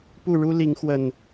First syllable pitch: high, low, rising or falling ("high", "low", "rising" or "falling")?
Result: falling